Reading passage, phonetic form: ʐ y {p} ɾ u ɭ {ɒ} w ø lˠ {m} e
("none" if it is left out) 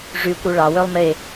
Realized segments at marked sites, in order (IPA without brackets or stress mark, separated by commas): kʷ, ɑ, m